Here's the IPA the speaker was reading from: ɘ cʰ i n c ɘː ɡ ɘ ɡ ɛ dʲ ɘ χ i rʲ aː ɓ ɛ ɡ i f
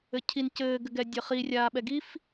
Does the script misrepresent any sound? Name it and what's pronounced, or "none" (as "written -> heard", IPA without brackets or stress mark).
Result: none